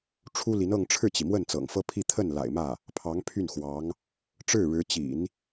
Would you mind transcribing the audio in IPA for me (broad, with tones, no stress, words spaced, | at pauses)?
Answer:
ʈ͡ʂʰu˥li˧˥nɤ˥˧ŋ ʈ͡ʂʰɻ̩˥˩t͡ɕi˩ mwə˥˩nt͡sɤ̰˨˩ŋfɤ˥ pʰi˥˧t̪ʰə˥˩n la̰˨˩ɪ̯mä˥˩ | pʰɑ˧˥ŋpʰy˥˩nxwɑ˧˥ŋ | ʈ͡ʂɻ̩˥˩ɻɻ̩˧˥ t͡ɕḭ˨˩˦n